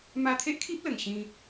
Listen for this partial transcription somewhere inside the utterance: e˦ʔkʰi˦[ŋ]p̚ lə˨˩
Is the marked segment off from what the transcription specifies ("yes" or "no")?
yes